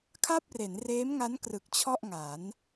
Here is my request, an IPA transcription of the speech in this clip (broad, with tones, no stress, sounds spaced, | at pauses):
kʰ a˥˩ p̚ r e˩˦ n r eː˦˥ m ŋ a˦˥ n k r ɯ˨˩ k̚ t͡ɕʰ ɔ˥˩ ʔ ŋ a˩˦ n